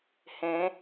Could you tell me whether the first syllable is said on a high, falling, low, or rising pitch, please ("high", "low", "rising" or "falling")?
rising